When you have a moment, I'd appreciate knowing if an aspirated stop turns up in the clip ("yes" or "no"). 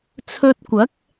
yes